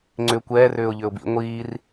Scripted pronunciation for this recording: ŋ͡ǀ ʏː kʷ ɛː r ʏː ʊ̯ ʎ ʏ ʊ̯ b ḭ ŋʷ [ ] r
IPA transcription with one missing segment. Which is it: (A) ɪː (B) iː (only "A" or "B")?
B